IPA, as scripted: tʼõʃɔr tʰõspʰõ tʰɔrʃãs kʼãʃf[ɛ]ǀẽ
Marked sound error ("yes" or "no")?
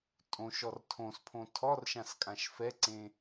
no